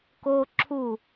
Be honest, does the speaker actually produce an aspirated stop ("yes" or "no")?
yes